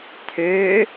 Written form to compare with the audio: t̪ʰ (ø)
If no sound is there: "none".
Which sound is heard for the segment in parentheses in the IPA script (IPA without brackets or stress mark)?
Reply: ø